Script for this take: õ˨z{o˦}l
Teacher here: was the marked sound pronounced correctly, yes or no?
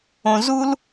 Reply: no